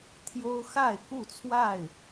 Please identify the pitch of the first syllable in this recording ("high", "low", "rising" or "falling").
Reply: high